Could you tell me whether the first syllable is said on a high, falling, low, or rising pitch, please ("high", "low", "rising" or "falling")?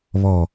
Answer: low